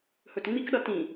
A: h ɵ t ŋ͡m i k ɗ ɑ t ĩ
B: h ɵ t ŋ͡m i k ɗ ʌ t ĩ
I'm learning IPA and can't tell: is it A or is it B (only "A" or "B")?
B